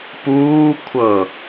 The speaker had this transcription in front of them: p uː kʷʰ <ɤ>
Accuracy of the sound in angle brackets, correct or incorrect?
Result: correct